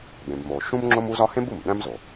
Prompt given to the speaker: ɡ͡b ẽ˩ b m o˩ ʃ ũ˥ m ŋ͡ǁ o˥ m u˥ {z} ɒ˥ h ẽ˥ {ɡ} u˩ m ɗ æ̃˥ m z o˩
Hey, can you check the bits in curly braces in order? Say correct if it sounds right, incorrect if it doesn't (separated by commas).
correct, incorrect